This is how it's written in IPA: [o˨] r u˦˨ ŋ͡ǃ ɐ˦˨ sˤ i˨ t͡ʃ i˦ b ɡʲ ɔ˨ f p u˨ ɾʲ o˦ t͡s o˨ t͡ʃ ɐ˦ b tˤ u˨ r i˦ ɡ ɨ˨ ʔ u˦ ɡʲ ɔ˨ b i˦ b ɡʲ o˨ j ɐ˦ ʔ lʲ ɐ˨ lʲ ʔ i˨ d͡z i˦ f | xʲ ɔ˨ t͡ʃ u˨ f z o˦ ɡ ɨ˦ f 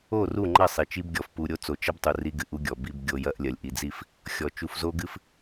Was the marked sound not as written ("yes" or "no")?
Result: yes